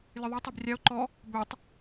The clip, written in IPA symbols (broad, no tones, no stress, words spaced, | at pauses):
lʲɨðˤu tˤubrʲao̯ ǃɔ | bøtˤ